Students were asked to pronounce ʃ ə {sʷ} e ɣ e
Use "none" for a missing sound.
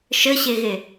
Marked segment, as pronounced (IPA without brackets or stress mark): ɕ